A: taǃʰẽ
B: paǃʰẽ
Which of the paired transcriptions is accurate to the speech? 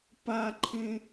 B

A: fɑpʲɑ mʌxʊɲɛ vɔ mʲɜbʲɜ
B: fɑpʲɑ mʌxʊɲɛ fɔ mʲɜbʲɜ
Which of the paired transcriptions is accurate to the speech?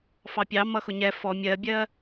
B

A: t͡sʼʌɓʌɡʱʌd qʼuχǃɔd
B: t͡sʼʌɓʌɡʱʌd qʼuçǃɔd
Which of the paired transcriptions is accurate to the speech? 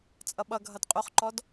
A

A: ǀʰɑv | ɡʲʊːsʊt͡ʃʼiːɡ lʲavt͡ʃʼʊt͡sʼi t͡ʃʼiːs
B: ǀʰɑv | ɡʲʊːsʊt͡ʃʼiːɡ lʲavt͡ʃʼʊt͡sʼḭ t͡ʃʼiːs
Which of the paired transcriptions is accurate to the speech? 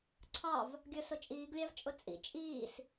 B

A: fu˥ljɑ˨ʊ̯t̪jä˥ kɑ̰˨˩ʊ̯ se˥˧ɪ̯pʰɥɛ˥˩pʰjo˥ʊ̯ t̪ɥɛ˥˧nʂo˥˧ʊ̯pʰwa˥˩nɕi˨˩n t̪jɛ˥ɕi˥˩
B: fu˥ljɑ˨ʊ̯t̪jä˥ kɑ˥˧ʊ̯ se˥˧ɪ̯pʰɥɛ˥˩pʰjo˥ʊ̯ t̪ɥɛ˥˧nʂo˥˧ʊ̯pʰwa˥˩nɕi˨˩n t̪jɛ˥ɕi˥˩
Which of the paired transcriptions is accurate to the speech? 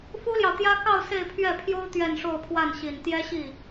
B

